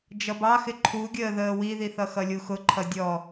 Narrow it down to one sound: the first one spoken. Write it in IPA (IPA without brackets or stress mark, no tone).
d͡ʒ